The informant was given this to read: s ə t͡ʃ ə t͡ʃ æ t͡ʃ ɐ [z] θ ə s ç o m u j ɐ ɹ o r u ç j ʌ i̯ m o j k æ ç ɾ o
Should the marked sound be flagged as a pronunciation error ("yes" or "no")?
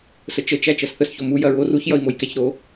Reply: yes